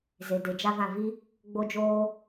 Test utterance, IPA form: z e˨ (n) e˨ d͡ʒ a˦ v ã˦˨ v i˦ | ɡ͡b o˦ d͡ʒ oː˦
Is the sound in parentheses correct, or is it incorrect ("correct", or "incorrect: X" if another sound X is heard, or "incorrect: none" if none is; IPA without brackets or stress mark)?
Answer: incorrect: d